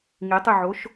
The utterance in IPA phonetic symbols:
ŋitˤyʕoʃ

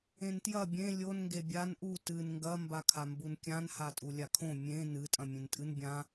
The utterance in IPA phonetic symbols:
ẽntjɐ bʲẽ lʲon ŋɡebʲan ʔu tɨn ŋɡɐ mbakʰambunkʲãn hatʼulʲakʰõ mʲẽ nɨ tʼɐ̃mʲẽntʼɨn bʲã

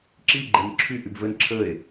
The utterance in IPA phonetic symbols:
ǁi ɡ͡ǃenǁʰy ʔybvən ǁʰəe̯

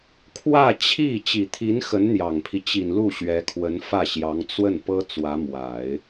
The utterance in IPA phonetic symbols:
kʰwä˥˧t͡ɕʰi˥˩ t͡ɕi˨˩t̪ʰi˧˥n xə˧˥nn̪jɑ˨˩ŋpʰi˦ t͡ɕi˨˩nlu˥˩ ɕɥɛ˧˥kʰwə˧˥n fä˥˩ɕjɑ˧˥ŋ t͡swə˥˩npɤ˥ t͡swä˧˥mwa˨˩˦ɪ̯

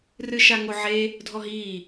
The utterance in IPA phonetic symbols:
rɨʃaŋoʕe | dʱɔɦiː

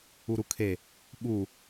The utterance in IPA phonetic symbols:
uɾukʰe | ɓu

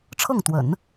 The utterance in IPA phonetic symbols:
ʈ͡ʂʰɤ˥˩ŋt̪wə̰˨˩˦n

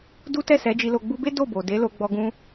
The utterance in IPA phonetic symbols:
du˦tɛ˦˨ sɛ˨˦d͡ʒi˧lo˧ ɡ͡bu˧be˦ do˦˨bo˨ de˨˦lo˧ ɡ͡bɔ˧ ɡũ˧

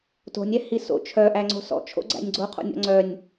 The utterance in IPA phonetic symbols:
to̤nʲ ɛhiso̰ t͡ʃʰœʔæ ŋ͡ǀo̤sɔ̰t͡ʃʰo̰ ɡ͡ǀæ̰nʲɡ͡ǀo qʰo̰nʲɔ̰ŋ͡ǀœnʲ

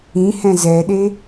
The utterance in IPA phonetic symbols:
ĩhɛ̃ zɛɗe

